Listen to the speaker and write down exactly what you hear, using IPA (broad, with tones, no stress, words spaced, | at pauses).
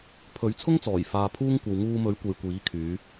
pʰɵ˨˥ɥt͡sʰʊ˥ŋt͡sɔː˨˩j faː˧pʰuː˥ŋkʷɐ˧w ŋuː˧mɵ˨˥ɥkʷe˨j kʷiː˨˥kʰyː˨˧